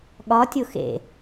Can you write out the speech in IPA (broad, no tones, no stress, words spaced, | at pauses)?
ɠɒ tʲoxḛ